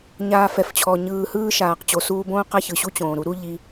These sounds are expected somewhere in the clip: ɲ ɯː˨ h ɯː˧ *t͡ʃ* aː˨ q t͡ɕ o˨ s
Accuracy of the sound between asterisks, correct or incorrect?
incorrect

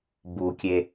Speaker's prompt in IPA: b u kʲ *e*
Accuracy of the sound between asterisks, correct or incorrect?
correct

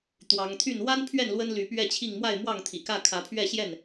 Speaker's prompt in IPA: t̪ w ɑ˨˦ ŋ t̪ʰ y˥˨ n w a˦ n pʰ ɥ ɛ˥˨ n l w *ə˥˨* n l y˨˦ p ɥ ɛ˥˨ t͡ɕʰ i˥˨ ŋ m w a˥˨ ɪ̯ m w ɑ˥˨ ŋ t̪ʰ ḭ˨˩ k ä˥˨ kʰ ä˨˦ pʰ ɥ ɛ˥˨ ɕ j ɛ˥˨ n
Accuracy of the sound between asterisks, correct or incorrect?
incorrect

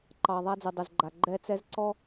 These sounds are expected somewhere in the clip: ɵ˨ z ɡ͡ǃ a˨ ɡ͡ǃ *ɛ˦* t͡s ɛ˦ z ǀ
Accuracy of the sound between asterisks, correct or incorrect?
correct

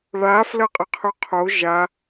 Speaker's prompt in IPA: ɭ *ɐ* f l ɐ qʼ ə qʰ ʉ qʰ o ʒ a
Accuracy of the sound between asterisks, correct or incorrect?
incorrect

